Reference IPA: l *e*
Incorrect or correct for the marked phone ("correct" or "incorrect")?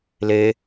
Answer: correct